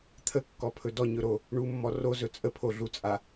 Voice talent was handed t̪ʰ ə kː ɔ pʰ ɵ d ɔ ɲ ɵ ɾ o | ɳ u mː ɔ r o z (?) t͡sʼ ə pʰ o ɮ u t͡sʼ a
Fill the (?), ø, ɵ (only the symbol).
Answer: ɵ